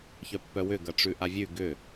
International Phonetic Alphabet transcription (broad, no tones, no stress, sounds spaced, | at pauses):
ç œ pː œ w ʏ ɡ ɐ ʈ͡ʂ ʉ ʔ a vʲ ʉ ɡ ʏ